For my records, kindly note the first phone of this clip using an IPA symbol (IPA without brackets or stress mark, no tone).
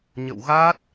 ɲ